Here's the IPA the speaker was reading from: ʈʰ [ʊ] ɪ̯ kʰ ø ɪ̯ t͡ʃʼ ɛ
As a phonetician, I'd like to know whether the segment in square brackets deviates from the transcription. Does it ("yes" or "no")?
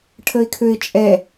yes